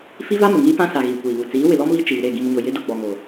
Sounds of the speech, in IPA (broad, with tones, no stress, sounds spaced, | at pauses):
f i˦ v a˦ m ʊ˨ ŋ iː˦ p ã˦ s a˨ ɣ iː˨ kʷ iː˨ β u˨ t͡s iː˨˦ w ɪ˨ l ɔ˦ m β i˦ t͡ʃ iː˨ ɾ e˦˨ ɡ ĩ˨ m ɲ ʊ˨ j ɪ˨˦ d ʊ˨ ɡ͡b ɔ˨ ŋ o˨